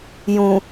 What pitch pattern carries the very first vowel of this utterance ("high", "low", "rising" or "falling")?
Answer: low